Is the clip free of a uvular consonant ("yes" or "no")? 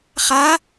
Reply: no